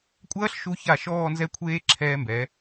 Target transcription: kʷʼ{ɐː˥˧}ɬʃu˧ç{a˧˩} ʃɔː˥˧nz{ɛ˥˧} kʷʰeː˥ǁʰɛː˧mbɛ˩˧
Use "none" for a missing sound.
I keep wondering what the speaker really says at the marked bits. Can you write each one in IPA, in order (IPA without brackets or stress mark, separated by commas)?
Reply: ɐː˥, a˧˩, ɛ˥˧